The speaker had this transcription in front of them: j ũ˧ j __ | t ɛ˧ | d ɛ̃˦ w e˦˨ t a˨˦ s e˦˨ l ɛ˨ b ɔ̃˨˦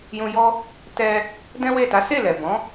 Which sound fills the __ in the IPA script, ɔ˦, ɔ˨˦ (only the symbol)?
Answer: ɔ˦